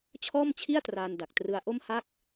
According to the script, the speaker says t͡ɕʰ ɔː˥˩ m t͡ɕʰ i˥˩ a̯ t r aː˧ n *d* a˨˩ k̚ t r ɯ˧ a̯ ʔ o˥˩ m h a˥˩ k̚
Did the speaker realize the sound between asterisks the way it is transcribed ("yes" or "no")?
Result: yes